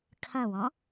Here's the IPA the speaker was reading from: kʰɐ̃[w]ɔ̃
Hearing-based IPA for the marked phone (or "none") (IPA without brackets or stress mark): w